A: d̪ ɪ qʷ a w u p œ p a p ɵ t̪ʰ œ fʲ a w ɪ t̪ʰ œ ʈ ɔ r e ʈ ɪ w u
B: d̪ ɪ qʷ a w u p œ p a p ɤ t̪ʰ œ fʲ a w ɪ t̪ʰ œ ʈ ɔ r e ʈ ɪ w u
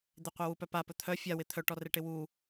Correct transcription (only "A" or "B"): A